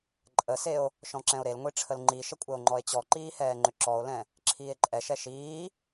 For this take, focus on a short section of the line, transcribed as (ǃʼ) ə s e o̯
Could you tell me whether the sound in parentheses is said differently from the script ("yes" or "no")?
no